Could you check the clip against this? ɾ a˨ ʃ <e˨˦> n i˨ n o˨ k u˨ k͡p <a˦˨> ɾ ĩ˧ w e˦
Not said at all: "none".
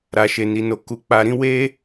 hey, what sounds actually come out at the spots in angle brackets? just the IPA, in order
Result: e˨, a˨

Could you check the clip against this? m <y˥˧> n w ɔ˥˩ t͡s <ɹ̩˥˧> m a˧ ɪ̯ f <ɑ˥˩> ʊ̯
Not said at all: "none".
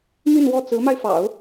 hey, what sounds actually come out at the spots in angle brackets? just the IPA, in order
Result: y˥˧, ɹ̩˧˥, ɑ̰˨˩˦

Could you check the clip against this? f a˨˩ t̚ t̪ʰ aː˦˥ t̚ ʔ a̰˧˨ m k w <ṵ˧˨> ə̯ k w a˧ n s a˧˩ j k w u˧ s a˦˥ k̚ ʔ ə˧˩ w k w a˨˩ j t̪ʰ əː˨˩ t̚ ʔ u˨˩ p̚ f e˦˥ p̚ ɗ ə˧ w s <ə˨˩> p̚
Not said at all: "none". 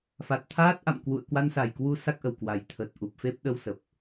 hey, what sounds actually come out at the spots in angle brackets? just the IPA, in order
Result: ṵ˧˨, ə˨˩

